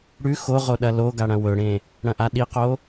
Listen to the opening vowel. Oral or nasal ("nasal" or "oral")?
oral